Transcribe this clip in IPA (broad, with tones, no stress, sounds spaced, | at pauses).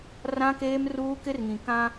r ã˦ k eː˦ m r uː˦ k ɪ˦ r ŋ ĩ˨ k ã˦